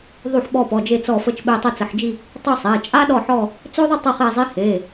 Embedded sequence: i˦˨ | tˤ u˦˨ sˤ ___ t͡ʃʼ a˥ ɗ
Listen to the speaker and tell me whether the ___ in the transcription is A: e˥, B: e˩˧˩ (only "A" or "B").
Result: B